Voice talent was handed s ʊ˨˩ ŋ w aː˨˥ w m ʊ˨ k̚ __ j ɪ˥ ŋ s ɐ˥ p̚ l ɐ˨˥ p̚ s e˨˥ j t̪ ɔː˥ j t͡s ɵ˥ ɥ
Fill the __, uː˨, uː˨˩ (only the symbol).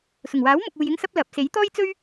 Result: uː˨